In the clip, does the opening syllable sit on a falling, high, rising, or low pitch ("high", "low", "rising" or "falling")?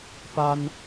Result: high